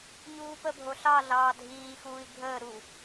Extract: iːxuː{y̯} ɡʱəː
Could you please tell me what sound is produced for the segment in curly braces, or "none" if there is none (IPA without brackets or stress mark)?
i̯